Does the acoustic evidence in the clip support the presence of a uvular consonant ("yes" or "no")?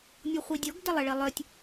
yes